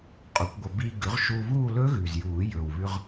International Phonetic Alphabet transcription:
qʼu˨˩˦kʷɡʷɐ˧ biː˧ ɡʉ˩˥ʁʃuː˧βuː˥˧ lɵ˦˥ɣʉ˨˩zjuː˨˩˦ jɵ˨˩wβʉ˧ʁ

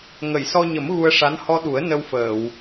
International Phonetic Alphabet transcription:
ŋə˨˩˨jsɔ˧ɲə˨˩˦m ɣu˧ə̯ʂa˧˥n hɔ˧ɗu˨˩˦ə̯ nə˧wfəː˨˩˨w

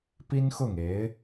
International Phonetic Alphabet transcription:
pi˥nxʊ˥˩ŋe˧˥ɪ̯

